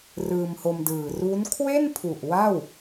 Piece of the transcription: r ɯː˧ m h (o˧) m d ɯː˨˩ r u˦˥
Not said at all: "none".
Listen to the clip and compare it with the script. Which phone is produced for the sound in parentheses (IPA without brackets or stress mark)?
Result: o˧